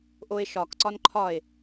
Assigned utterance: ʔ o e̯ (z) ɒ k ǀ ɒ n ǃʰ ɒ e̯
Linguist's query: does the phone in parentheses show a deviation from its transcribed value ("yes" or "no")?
yes